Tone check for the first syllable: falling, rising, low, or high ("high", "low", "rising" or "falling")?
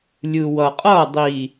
low